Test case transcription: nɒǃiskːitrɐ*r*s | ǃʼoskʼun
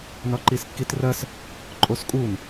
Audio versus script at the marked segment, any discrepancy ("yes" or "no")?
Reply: yes